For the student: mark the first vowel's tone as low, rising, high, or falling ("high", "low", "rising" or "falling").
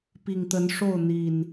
low